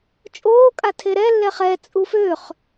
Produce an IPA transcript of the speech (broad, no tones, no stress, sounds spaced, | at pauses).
t͡ʃʼ oː kʼ a tʰ e ɾ ɛ lː ɛ χ ɛ t͡sʼ u f ø χ